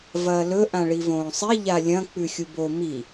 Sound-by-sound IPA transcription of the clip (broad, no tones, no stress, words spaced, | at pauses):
vɐːlɵ ʔãɭivõːsˤi ʎalʲɐ̃ k͡pʉxʲubo mi